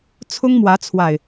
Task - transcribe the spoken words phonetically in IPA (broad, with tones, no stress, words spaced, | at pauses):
t͡sʰʊ˦ŋmwä˨˦t͡sʰwa˨˩ɪ̯